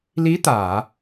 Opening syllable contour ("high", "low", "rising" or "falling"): rising